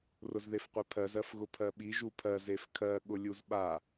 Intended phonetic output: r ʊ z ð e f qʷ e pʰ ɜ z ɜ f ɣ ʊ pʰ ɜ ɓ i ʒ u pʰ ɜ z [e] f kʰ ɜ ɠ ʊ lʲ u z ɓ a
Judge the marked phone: correct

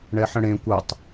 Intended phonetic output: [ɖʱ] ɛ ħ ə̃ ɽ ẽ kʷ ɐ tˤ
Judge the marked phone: incorrect: ɳ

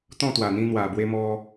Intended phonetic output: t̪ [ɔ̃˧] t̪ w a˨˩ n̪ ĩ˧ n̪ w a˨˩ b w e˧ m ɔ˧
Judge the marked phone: incorrect: ɔ̃˥˧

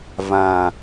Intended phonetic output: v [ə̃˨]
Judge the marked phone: incorrect: ã˨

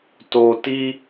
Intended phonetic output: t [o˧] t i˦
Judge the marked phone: correct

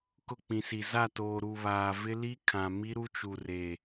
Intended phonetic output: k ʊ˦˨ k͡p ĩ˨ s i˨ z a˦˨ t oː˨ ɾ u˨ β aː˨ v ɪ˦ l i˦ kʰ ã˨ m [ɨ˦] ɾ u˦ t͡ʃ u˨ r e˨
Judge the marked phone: incorrect: i˦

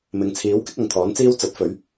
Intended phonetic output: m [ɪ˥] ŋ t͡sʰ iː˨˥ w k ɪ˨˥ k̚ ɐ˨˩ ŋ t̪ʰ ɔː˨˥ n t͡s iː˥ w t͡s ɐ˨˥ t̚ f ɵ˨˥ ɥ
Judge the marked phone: incorrect: ɪ˨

